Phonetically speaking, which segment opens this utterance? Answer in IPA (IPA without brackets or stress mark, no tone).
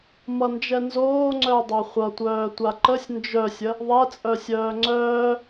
m